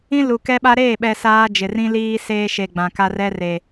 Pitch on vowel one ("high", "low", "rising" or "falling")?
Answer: high